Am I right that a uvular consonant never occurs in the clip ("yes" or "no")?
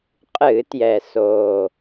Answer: no